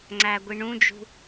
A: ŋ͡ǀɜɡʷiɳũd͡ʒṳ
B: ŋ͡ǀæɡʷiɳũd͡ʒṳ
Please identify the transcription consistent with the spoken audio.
B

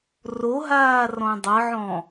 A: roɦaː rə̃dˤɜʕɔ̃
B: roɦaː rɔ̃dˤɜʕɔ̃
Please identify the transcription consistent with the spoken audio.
B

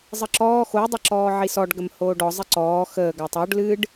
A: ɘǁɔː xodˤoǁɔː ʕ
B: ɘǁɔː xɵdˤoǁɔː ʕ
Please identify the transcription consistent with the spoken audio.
A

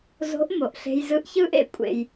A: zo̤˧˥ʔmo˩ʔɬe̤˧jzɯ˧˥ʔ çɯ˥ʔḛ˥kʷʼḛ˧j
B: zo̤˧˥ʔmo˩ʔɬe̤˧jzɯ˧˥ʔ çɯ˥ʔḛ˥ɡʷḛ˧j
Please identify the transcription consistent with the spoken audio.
A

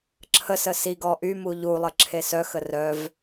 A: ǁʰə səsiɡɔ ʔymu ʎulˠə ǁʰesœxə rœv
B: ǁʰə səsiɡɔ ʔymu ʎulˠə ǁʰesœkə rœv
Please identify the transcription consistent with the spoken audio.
A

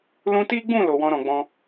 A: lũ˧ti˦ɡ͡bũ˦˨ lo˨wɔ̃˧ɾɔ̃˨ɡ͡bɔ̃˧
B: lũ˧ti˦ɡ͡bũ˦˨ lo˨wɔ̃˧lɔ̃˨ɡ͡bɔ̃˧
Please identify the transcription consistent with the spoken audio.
A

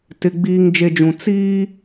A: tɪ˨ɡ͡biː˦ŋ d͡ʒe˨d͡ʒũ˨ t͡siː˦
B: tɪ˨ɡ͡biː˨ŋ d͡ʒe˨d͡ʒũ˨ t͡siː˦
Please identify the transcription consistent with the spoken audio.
B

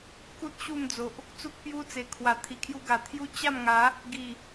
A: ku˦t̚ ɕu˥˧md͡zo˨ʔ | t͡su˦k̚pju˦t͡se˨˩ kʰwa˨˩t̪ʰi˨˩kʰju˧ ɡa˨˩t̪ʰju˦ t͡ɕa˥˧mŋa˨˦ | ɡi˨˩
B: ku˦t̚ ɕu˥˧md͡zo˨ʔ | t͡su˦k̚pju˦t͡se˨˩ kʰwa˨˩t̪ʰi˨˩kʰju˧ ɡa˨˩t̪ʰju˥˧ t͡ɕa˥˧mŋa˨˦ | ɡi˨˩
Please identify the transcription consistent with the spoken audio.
A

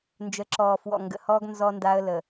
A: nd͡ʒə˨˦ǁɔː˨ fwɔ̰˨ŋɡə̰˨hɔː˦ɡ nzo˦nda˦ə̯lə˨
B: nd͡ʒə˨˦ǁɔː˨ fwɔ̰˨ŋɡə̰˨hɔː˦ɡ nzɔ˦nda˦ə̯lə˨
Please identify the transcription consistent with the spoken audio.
B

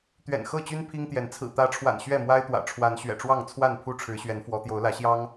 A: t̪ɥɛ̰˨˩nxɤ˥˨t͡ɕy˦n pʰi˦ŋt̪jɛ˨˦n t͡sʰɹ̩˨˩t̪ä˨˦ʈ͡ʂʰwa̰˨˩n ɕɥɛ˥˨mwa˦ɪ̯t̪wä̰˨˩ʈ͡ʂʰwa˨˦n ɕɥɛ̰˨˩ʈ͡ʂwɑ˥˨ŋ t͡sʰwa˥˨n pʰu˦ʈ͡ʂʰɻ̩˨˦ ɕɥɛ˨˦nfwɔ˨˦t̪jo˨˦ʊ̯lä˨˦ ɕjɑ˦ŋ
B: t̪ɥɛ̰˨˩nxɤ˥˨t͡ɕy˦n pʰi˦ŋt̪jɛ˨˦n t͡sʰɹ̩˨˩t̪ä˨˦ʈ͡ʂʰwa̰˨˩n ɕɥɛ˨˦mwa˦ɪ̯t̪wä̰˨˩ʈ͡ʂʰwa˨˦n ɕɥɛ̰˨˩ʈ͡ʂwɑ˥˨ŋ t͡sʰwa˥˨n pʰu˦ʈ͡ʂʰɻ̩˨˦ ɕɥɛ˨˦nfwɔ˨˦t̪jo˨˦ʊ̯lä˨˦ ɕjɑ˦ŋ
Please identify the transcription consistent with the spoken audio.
A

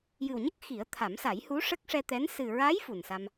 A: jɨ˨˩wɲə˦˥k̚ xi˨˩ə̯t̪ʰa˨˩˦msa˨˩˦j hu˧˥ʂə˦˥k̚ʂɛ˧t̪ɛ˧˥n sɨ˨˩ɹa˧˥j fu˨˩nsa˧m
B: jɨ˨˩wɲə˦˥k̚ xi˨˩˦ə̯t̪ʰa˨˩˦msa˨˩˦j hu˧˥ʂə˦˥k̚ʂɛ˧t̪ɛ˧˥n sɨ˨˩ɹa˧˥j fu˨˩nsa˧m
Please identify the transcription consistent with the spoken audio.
B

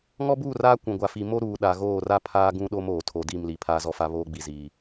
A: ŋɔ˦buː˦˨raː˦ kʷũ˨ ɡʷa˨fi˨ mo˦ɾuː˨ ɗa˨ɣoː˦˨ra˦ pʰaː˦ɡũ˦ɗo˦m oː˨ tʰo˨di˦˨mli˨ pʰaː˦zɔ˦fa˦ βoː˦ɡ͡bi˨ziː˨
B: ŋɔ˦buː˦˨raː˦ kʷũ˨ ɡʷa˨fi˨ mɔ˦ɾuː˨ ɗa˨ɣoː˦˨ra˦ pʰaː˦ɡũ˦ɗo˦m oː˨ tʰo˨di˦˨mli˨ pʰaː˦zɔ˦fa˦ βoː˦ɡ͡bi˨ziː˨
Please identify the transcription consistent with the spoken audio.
A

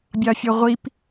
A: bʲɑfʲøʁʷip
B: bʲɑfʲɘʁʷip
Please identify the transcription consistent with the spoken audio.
A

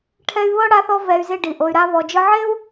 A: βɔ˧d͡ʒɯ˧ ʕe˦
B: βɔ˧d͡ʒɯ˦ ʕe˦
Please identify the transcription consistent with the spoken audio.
B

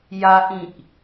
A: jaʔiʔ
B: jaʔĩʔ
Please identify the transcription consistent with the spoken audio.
B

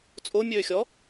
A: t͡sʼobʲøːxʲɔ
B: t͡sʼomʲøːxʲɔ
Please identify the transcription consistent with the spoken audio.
B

